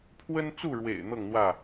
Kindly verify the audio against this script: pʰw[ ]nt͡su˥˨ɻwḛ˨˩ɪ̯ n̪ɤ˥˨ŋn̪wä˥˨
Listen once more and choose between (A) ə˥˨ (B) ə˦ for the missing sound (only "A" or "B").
B